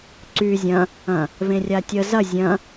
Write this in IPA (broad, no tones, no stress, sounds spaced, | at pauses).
ǀ y zʲ ɐ̃ | ɐ̃ | v ẽ rʲ a tʲ ə z ɐ zʲ ɐ̃